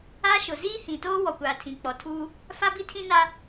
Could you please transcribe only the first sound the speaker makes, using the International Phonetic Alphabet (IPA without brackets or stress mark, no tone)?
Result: aː